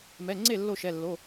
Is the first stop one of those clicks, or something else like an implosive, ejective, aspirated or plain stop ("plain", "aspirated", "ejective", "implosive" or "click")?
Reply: click